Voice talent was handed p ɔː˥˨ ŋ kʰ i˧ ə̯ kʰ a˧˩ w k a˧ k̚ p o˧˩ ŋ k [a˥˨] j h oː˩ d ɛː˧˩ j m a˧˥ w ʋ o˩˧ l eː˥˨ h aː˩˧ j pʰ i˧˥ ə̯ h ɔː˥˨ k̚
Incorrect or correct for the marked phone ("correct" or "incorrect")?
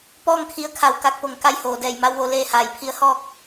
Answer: correct